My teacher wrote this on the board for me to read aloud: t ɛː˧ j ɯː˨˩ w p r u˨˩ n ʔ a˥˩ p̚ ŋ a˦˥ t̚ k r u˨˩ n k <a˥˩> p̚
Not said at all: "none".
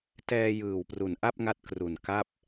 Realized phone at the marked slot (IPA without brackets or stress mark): a˥˩